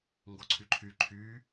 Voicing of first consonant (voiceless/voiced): voiced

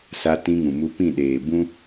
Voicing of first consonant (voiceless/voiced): voiceless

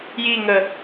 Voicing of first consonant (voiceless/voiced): voiced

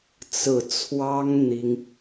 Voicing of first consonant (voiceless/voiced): voiceless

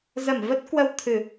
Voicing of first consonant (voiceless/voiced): voiced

